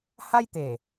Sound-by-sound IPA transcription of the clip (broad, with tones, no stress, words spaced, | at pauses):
ha˦jt̪e˨˩